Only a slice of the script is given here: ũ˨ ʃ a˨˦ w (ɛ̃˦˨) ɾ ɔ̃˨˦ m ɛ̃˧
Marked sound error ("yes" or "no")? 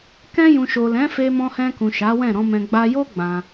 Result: no